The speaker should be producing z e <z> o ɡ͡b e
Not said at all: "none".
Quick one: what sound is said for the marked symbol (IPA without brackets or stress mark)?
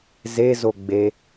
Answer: z